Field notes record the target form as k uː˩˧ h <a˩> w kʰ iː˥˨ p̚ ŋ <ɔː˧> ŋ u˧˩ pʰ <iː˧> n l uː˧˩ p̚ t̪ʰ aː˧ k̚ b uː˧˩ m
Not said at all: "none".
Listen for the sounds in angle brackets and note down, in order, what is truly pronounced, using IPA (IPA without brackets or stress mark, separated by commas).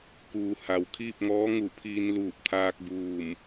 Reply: a˩, ɔː˧˥, iː˧